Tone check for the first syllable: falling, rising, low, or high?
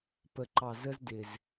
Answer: low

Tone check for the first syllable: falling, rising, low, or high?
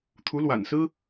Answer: rising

